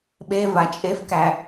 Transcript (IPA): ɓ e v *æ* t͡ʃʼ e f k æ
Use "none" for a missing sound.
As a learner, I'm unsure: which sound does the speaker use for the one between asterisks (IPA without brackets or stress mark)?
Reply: a